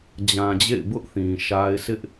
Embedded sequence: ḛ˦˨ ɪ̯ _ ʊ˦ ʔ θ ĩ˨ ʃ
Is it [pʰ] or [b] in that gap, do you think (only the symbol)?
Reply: b